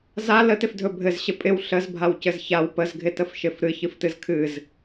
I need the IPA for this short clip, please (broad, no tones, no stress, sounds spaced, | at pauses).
z a l ə t ɪ f dʱ ɵ bʱ ɘ z ɕ ɪ pʼ ɪ w ɬ ə z bʱ a w c ɘ z ç a w p ə z ɡʱ ɪ t ə f ʃ ɪ f ɾ ɨ ç ɨ f t ɨ z kʰ ɨ z